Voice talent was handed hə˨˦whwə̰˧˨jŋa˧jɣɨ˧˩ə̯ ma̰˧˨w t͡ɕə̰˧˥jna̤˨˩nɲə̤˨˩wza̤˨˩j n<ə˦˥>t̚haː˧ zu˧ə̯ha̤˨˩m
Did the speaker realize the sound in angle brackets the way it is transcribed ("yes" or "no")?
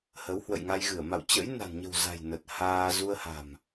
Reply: no